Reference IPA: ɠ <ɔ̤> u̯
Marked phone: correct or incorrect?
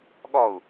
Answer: incorrect